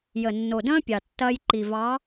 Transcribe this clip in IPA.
j ə˨ nː o˨ d ə̃ː˦ pʲ ɑ˨ tː ɐː˦ j ǃ i˨ v ɑ˨˦

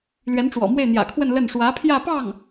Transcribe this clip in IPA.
l ɥ ɛ˧˥ n ʈ͡ʂ w ɔ̰˨˩ m w e˥˩ ɪ̯ n̪ j ä̰˨˩ kʰ w ə˥˧ n l ə˥˩ n ʂ w ä˧˥ pʰ j ä˥˧ p ɑ˥˩ ŋ

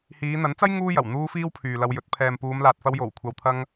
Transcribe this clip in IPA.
h iː˨˧ n̪ ɐ˨˥ n t͡s ɐ˥ j ŋ uː˥ j ɐ˨˩ w n̪ uː˧ f iː˥ w pʰ yː˨ l ɐ˧ w j ɵ˨˥ t̚ pʰ ɛː˨ m p uː˨˧ m l aː˨ t̚ f ɐ˧ w j o˨˩ w kʷʰ ɐ˨ w t̪ʰ ɐ˧ ŋ

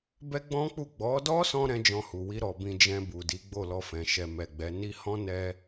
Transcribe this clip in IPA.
b ɛ˦ ɡ͡b ɔ̃˦ k͡p u˦˨ ɡ͡b ɔ˨˦ d ɔ˦ s ɔ̃˧ ɾ ɛ̃˦ d͡ʒ ɔ̃˧ h u˨ w i˧ ɾ ɔ˨ b ĩ˧ d͡ʒ ɛ̃˧ b u˨ d i˨˦ ɡ͡b o˦˨ l ɔ˧ f ɛ̃˨ ʃ ɛ˨ m ɛ˨ ɡ͡b ɛ˨˦ n i˦ h ɔ̃˦ n ɛ˧

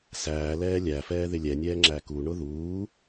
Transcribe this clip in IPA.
s æː l ɛː lʲ æ f ɛː ð ɪ lʲ ɛ nʲ ɛː ŋ͡ǁ æ k u ɳ ʊ ð uː

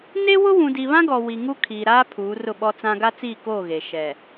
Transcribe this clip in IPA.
n e˦ w ʊ˦ w ũ˨ d i˨ β ã˦ ɡ ɔ˨ w i˨ ŋ u˦ kʰ iː˨ ɾ aː˦ pʰ uː˨˦ r ʊ˦˨ ɓ ɔ˦ t͡s ã˦ ɡ a˦ t͡s iː˦˨ k oː˦˨ ɣ e˨ ʃ ɛ˨

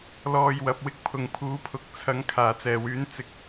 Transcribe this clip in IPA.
l ɔː˧ j w ɐ˧ p̚ w ɪ˧ k̚ pʰ ʊ˨ ŋ pʰ uː˨˧ pʰ ʊ˨ k̚ t͡sʰ ɐ˨˧ ŋ kʰ aː˨ t͡s ɛː˨ w yː˨˧ n t͡s ɪ˨ k̚

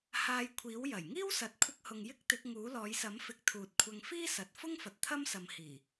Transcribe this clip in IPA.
h aː˧ j kʷʰ iː˨˥ w j ɐ˨˩ j ŋ iː˥ w s ɐ˨ t̚ kʷʰ ɪ˧ k̚ h ʊ˨ ŋ j ɪ˥ k̚ t̪ ɪ˨˥ k̚ ŋ uː˨˥ l ɔː˨˧ j s ɐ˨˥ m f ɪ˨˥ k̚ t̪ʰ uː˨ t̚ kʷʰ ɐ˧ ŋ f iː˥ s ɐ˨ t̚ f ʊ˥ ŋ f ɐ˨ t̚ t̪ʰ ɐ˥ m s ɐ˨ m h iː˨˩

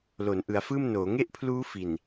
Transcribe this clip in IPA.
l o˩˦ n ʔ ɯ˩˦ a̯ f ɯː˥˩ m n oː˩˦ ŋ e˥˩ ʔ pʰ l uː˦˥ f i˨˩ n

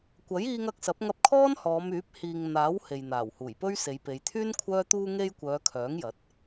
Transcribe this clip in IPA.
kʷ ɐ˨˥ j iː˧ ŋ ɐ˧ k̚ s ɐ˨˥ p̚ ŋ ɐ˧ p̚ kʰ ɔː˥ n h ɔː˨˧ m yː˨˥ p̚ h iː˨ ŋ n̪ aː˨˥ w h e˨ j n̪ aː˨˩ w h uː˨˩ j p ɵ˥ ɥ s e˨˧ j p e˨˧ j t̪ʰ yː˥ n kʷʰ œː˥ t̪ uː˧ ŋ e˧ j kʷ œː˨˧ kʰ œː˨˥ ŋ j ɐ˨˥ t̚

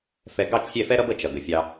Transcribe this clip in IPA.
f ɛ˦ ɡ ɑ˦˨ t͡ʃ sʲ ɛ˦˨ f ɛ˦ ɾ ʌ˦ b ə˧ t͡ʃ ʌ˨ ɡ ə˧ fʲ ɑ˦

